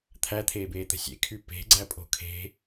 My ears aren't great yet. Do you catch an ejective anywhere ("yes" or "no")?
yes